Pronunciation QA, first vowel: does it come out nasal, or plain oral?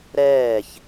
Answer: oral